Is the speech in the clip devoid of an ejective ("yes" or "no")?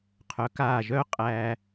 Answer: no